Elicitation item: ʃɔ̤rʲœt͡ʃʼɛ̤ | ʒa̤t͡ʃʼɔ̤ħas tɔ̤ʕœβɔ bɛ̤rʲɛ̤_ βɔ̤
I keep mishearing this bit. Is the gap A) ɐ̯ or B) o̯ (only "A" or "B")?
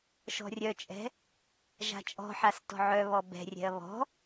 A